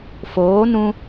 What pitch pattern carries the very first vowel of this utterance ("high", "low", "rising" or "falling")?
rising